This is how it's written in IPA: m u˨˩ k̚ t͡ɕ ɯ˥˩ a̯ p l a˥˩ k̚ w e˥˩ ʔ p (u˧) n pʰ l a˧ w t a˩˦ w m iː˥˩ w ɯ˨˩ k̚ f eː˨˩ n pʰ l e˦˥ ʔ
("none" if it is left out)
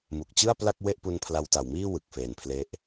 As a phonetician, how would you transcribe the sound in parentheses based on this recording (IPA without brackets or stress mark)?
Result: u˧